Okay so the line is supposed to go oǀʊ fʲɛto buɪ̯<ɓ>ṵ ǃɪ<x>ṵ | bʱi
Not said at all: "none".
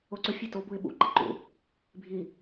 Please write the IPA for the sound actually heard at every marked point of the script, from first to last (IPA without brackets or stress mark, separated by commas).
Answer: ɓ, ǃ